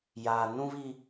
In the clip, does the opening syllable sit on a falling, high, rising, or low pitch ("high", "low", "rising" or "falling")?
high